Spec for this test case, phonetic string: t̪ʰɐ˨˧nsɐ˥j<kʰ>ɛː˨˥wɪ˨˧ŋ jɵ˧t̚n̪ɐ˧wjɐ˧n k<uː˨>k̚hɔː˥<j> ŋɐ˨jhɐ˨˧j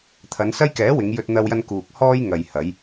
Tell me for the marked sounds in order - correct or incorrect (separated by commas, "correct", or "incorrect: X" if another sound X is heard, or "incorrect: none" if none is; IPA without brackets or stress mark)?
incorrect: k, correct, correct